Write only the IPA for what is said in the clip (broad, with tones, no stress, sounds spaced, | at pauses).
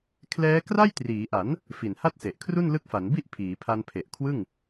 kʰ l ɛː˦˥ k r a˥˩ j t r iː˩˦ ʔ a˩˦ n | f i˨˩ n h a˥˩ t̚ s e˨˩ ʔ kʰ r u˥˩ n l ɯ˦˥ k̚ f a˩˦ n b i˥˩ ʔ pʰ iː˩˦ pʰ a˧ n pʰ e˨˩ ʔ kʰ w ɯ˥˩ ŋ